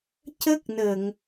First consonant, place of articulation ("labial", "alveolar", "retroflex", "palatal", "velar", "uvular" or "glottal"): palatal